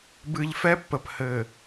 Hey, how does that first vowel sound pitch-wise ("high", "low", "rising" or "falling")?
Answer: low